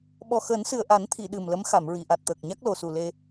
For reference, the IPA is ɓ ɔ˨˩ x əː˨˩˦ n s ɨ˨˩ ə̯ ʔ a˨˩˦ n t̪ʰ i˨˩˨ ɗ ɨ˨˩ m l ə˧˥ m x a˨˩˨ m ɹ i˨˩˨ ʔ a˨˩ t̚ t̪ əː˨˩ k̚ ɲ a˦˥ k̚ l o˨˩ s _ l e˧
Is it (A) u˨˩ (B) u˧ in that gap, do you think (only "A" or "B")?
A